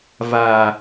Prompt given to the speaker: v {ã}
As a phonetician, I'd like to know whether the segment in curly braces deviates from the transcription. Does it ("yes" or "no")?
yes